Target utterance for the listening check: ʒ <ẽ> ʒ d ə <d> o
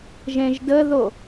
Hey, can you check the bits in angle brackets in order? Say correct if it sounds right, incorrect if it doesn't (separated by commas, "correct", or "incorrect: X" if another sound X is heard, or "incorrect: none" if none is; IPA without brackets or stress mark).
correct, incorrect: ð